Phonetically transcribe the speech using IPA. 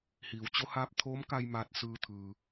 h iː˩˧ w t͡ɕ o˧˥ h aː˧˥ p̚ t̪ʰ oː˧˥ m k a˧ j m aː˧ t̚ s ɯː˧ t̪ʰ ɯː˩

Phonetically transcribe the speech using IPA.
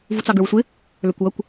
v u t͡s ɑ ɡ ə˞ w sʷ ɪ | l ə˞ kʷ w ʌ kʷ

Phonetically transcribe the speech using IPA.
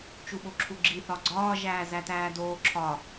t͡ʃ u ɓ o ǁʰ u ɡ͡ǁ i θ ɒ ɡ͡ǀ ɒː ʒ æː z æ t æː d oː ǁʰ ɒ

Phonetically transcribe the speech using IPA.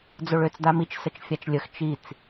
d͡z o ɭ ø t͡s d a m i t͡ʃ s ə t͡ʃ fʲ a t͡ʃ lʲ ə x t͡ʃ i t͡s

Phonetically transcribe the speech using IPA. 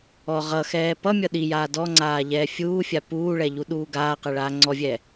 ɔ ʁ ʌ x ɛː p ʌ mʲ ʌ ɗ i j aː d ɔ ŋ͡ǀ aː ʎ ɛː fʲ uː fʲ a p uː ɭ ɛ ʎ u ɗ uː ɡ aː q ɛ ɭ aː ŋ͡ǀ ɔ vʲ ɛ

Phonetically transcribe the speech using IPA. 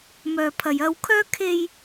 m œː˨ pʰ ɐ˨ j ɐ˧ w kʰ œː˥ kʰ e˧ j

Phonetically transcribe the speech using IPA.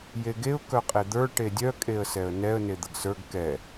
j e ɡ e ʊ̯ k œ qʼ e d̪ ə˞ ʈ e dʲ œ kʼ e ə̯ s ɛ ə̯ n ɛ ə̯ n e d̪ ə ɡ s ə˞ ɡ k ɛ

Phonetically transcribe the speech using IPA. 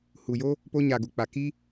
h u˨ j o˦ | p o˧ ɲ a˨ ɡ u˨ k͡p a˨ k i˦

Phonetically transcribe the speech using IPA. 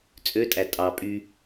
t͡sʼ ø tʼ æ tʼ ɑ pʼ y

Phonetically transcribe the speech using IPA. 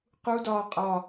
q u d ɒː qʼ ɒ

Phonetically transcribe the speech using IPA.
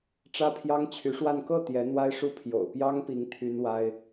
ʈ͡ʂ ä˥ pʰ j ɑ˥ ŋ t͡ɕʰ y˧˥ ʂ w a˥˧ n k ɤ˥˩ t̪ j ɛ˧˥ n̪ w a˥ ɪ̯ ʂ u˥ pʰ j o̰˨˩ ʊ̯ p j ɑ˥ ŋ p i˧˥ ŋ t̪ʰ y˥ n w a˥ ɪ̯

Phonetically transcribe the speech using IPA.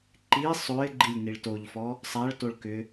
ǃ i sˤ o ɪ̯ ɡ͡ǃ i lʲ n i ɭ t o ʎ f ɔ | sˤ a ɭ t o ɭ k ʏ

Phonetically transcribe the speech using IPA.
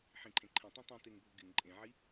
ħ ĩ ǃʰ ẽ ǃʰ ĩ tˤ ĩ tˤ ĩ t e ŋ bʱ ʊ ɡ ɪ ŋ ǃʼ ẽ ʕ i

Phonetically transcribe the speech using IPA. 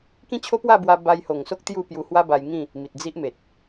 k ĩ˦ t͡ɕʰ o˦ p w a˥˧ b w a˧ b a˧ j h o˨˩ ŋ s o˦ k̚ t̪ j u˥˧ p j u˧ h w a˦ b a˧ j ŋ ĩ˥˧ | m i˨ t̚ d͡z i˦ ʔ m e˨ t̚

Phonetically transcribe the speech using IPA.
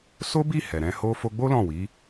s o˦ b i˦˨ h ɛ˨ ɾ ɛ̃˧ h o˦ f o˧ ɡ͡b o˦ l ɔ̃˦˨ w i˨˦

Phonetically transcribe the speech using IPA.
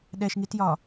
ɗ ɛ ʃ ŋ i t j ɒ

